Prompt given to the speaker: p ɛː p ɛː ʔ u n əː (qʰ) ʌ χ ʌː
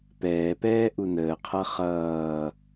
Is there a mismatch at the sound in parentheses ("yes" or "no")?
no